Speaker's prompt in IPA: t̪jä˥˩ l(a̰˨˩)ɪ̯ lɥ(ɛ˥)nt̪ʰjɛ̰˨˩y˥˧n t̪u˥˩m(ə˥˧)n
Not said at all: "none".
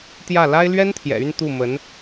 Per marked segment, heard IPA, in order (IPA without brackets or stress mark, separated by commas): a˥, ɛ˥, ə˧˥